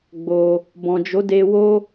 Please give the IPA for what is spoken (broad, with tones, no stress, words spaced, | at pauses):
ɡ͡bo˧ | bɔ̃˨d͡ʒo˨˦de˧ wo˦